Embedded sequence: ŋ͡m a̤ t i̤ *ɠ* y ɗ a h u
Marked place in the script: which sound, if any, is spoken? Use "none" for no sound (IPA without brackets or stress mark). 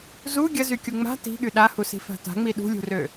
ɠ